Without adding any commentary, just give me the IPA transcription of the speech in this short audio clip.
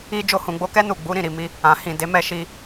i˦ d͡ʒ o˧ h ũ˨ ɡ͡b o˧ k ɛ˦ n u˦˨ ɡ͡b u˨˦ ɾ ĩ˦˨ ɾ i˨ m i˧ | ã˨ h ĩ˨ d e˨˦ m ɛ˦˨ ʃ i˧

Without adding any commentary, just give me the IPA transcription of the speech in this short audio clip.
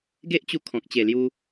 ɡ e˦ ʔ t͡ɕ u˧ kʰ ɔ̃˨ k̚ t͡ɕ e˨˩ l j u˧

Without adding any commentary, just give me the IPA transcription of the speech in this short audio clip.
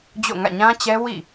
d͡ʑ o̰˦˨ ŋ ä̰˦˨ ɲ ã˦ t͡ɕ ɛ˦ w ḭ˦˨

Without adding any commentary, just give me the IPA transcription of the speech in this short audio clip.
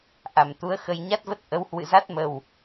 ʔ a˧˩ m t̪ u˨˦ ə̯ x ə˧ j ɲ a˦˥ t̚ v ə˦˥ t̚ ʔ ə˨˦ w h w ɨ̰˧˨ z a˦˥ t̚ m ə˨˩ w

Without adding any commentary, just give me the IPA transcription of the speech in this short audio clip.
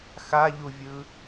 x a ʎ u vʲ ɯ

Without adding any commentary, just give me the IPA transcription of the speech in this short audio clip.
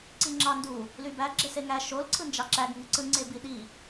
ǀ i ŋ͡ǁ ɑ n d u | l y b æ ɡ͡ǁ e s e ŋ æ ʃ o l ǀʰ ɯ n d͡ʒ ɑ ǁ æ ɡ ŋ ɯ ǀ ɯ ŋ͡ǀ e b i ɗ i

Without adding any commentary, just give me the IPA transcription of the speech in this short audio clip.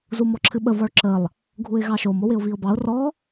z u m ɔ ǁʰ ɨ ɓ ə v ɔ ɭ ǁ ə lˠ | ɡʱ u ɪ̯ ɣ ɑ ʃ o m o w ɪ ʊ̯ v i ʊ̯ b ɑ ʊ̯ r ɔ

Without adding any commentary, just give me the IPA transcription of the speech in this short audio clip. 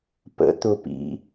p ə̰ t̪ ʊ p ḭ

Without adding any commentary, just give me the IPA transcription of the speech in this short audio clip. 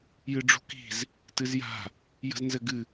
j ɨ ɖ͡ʐ ṳ k i̤ z | t ɨ z j a̤ | j ə̤ z n z ɘ ɡ ɨ

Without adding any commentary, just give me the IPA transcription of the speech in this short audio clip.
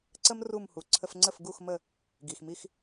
ǀ ə˥ m r u˥˩ m h u˩ ǀʰ ə˧ f ŋ͡ǀ ə˥˩ f ɡ u˥˩ x m ə˥˩ | ɡ i˩ x m i˧ x

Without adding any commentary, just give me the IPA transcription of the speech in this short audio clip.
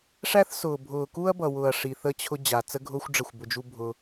ʂ æ˦ θ s ʊː˨ bʱ ʊː˨ k u˦ ɐ̯ b ʌ˨ w ʊ˨ ɐ̯ ʂ i˨ θ ə˦ t͡ɕʰ ʊ˦ d͡ʑ a˨ t͡s ə˦ ɡʱ ʊː˦ xʷ ɖ͡ʐ ə˦˨ xʷ b ʊ˧ d͡ʒ u˦ bʱ ʊ˧

